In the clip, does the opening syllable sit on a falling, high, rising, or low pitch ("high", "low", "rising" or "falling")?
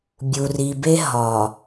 low